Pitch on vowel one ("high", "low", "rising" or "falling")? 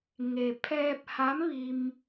low